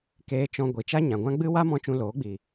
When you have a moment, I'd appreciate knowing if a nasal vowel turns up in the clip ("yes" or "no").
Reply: yes